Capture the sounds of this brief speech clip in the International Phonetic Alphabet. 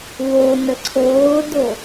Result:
w o n ə ǀʰ oː d o

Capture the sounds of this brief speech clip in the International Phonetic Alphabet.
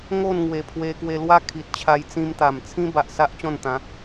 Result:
ŋ o˥˧ n ŋ w e˨˩ pʰ w e˧ k w e˧ l w a˦ kʰ i˨ t̚ t͡ɕʰ a˧ j t͡s ĩ˧ m t̪ a˨˩ m t͡sʰ ĩ˦ b a˨ ʔ s a˦ ʔ t͡ɕ ɔ̃˥˧ n t̪ ã˨˦

